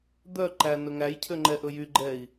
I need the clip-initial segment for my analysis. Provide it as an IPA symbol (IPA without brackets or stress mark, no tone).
d̪